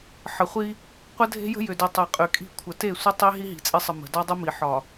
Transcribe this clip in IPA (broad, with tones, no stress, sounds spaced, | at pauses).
ħ ə˨ χʷ i˦ | qʷ ə˦ dʱ e̤˦ j ə̤˦ j ʏ˨ d i˨ tˤ e˨ qʼ y˨ kʼ i̤˦˨ kʷʰ ə˨ t e˦˨ sʷ ə˦ tˤ i˦ ɦ i˦ ɦ i̤˨ t͡sʼ e˦ sˤ ə˨ m ə̤˨ d ɒ˦ dˤ ə˦ m i˨ ħ ɒ˨